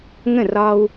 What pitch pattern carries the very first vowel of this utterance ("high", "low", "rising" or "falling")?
falling